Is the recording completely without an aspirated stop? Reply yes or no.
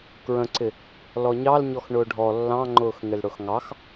yes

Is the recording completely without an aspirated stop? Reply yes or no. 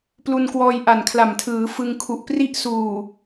no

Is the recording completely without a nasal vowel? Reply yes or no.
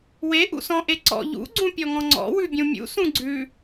no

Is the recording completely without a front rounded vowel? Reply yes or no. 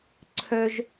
no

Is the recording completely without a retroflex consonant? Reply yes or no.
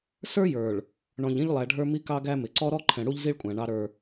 no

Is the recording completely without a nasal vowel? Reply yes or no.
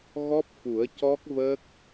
yes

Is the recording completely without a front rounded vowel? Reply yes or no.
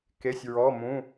yes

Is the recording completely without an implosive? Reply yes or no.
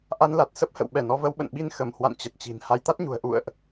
no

